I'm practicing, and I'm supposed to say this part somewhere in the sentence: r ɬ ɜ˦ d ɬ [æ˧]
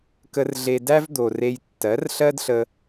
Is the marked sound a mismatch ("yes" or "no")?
yes